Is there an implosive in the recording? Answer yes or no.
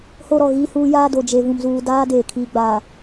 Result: no